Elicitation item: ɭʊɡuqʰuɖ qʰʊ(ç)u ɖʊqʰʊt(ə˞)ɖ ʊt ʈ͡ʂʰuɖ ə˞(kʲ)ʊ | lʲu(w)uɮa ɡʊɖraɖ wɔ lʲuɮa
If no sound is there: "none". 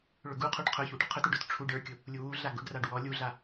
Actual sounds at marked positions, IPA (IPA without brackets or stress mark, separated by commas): ç, ə˞, kʲ, w